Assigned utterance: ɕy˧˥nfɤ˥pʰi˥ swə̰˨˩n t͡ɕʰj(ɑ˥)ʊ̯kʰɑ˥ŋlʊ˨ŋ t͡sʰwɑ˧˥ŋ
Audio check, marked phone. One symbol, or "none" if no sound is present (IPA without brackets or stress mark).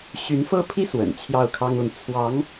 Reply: ɑ˥˩